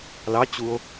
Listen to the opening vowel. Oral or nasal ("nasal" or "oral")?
oral